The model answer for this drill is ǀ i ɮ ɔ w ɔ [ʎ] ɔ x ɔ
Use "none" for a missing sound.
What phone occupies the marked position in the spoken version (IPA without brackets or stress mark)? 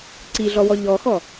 ʎ